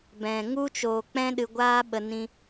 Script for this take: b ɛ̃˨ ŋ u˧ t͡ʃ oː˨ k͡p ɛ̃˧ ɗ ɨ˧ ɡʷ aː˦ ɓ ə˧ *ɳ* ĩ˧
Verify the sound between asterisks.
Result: incorrect: n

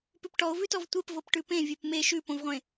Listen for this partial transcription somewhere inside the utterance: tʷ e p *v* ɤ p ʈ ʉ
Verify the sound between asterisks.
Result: correct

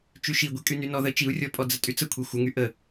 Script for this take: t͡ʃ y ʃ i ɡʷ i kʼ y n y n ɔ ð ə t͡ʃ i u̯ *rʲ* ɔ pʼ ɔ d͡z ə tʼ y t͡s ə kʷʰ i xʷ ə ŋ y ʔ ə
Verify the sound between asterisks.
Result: correct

